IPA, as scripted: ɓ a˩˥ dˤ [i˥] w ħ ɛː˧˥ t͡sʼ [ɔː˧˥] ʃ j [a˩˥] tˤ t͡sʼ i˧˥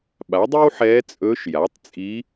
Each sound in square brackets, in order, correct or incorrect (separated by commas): correct, incorrect, correct